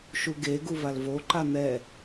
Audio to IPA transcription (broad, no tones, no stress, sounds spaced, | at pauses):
ʃ u ɡ e ɡ u v a l v o ǃ a n̪ ɛ